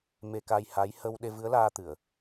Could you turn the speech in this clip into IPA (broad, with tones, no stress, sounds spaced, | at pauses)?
m e˧ k a˧ j h a˧˥ j h ə˧ w ɗ e˧ v ɨ˧˥ ə̯ l aː˧ t̪ ɨ˨˩˨ ə̯